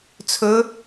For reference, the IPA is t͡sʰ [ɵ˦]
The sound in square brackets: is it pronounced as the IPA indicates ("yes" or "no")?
no